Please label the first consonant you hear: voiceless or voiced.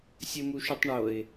voiceless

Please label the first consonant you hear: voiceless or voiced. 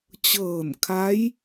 voiceless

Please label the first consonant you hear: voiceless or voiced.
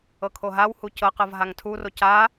voiceless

